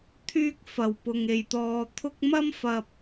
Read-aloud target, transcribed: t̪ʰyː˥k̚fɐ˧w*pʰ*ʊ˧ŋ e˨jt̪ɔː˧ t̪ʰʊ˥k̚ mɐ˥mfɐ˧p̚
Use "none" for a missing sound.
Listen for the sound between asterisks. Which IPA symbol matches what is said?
p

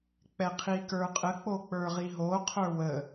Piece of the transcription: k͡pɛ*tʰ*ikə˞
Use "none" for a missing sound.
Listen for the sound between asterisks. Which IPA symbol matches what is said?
qʰ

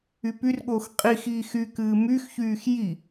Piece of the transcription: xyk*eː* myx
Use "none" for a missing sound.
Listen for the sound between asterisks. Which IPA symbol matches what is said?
ɨː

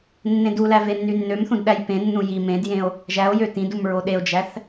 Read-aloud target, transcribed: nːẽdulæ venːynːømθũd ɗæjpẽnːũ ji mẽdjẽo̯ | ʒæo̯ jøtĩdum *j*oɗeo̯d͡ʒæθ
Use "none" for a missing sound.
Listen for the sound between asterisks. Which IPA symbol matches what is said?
ɹ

